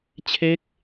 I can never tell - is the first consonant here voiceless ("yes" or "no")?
yes